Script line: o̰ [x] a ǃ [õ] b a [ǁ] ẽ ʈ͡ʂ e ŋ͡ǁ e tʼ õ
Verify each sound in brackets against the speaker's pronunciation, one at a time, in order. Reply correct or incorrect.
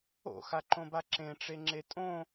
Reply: correct, correct, correct

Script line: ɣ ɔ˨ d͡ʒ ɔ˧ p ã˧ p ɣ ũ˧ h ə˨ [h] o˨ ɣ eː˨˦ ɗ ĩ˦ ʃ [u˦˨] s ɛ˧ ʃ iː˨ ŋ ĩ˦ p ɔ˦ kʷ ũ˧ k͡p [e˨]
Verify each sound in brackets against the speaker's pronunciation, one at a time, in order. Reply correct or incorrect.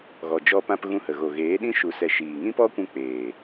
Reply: incorrect: ɣ, incorrect: u˧, incorrect: eː˨

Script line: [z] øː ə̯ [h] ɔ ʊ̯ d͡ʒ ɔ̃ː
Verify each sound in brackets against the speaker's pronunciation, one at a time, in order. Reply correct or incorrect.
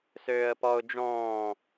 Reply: incorrect: s, incorrect: p

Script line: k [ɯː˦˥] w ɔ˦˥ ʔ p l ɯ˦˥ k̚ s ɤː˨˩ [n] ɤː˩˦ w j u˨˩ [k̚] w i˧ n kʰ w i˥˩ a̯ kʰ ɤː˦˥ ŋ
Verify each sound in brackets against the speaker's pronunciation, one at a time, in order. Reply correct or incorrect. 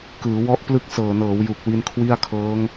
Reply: incorrect: ɯː˩˦, correct, correct

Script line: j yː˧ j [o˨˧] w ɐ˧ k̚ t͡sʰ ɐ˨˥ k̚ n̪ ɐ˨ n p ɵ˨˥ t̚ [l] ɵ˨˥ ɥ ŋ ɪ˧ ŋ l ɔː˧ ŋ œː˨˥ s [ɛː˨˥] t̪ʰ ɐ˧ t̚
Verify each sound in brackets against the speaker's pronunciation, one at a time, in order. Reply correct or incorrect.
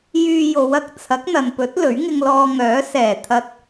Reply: correct, correct, incorrect: ɛː˨˩

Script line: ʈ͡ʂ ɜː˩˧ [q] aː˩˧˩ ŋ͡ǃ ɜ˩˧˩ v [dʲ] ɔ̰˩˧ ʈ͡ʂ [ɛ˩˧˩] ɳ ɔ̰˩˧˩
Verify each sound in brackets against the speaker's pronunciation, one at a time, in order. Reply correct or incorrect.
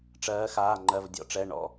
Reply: incorrect: x, correct, correct

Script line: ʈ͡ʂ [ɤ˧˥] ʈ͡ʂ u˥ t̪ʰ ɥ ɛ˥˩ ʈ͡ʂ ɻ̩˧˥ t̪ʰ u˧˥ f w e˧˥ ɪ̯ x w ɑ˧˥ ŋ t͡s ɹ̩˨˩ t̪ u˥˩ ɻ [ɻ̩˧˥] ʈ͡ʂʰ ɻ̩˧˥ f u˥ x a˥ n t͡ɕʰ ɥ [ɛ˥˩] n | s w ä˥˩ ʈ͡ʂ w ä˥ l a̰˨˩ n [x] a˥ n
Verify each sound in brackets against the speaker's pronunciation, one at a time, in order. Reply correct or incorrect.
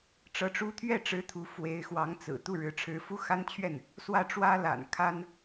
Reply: correct, correct, correct, incorrect: kʰ

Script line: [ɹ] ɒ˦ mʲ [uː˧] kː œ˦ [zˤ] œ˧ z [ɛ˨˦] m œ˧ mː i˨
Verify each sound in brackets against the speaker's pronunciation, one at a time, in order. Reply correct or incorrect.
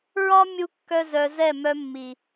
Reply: correct, incorrect: u˧, incorrect: z, incorrect: ɛ˦˨

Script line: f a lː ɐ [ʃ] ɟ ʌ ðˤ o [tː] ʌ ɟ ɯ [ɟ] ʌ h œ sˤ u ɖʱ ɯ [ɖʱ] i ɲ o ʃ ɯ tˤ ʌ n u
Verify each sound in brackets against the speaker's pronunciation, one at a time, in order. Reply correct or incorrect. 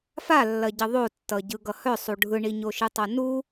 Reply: incorrect: none, correct, incorrect: ɡ, incorrect: ɳ

